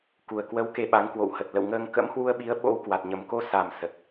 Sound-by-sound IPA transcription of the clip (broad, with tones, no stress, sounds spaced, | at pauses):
k u˨˩ ə̯ k w ə˨˦ w k e˧ ɓ a˨˦ ŋ k w o̰˧˨ w h ə˨˩ t̚ l ə̰˧˨ w ŋ əː˧ ŋ k ə̰˧˥ m h w u˧ ə̯ ɓ i˨˦ ə̯ ɓ o̰˧˥ w k w a˨˩ t̚ ɲ ə˨˩ m k o˧ s a˨˩ m s ə˨˩ t̚